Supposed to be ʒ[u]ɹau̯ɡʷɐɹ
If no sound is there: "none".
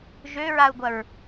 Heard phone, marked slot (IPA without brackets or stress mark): ø